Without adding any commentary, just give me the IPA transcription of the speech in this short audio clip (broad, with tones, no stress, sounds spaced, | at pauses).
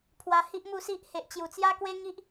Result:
pʰ w a˧ h i˦ ʔ m u˥˧ s i˦ ʔ h e˨ ʔ t͡ɕ j u˨˩ t͡s j a˦ k w e˦ ŋ i˦ ʔ